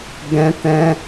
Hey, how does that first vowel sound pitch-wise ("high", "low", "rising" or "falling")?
high